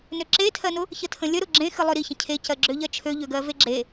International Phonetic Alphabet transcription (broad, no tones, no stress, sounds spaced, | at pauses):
n ø ǁ e tʰ ɜ n ʊ | ç ə tʰ ə̃ lʲ ə ɾ ʊ ɡ͡ǁ ẽ x ɨ lˠ ø ɾ i ç ə̃ cʰ e c ɜ ɡ͡ǁ ø ʎ ɜ t͡ʃʰ ø ʎ ø ɡ ɜ v e ɡ͡ǁ e